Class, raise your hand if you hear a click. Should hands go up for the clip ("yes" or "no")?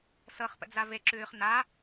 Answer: yes